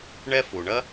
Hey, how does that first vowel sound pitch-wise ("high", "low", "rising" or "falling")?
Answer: high